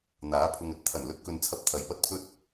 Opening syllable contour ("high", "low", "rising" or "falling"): rising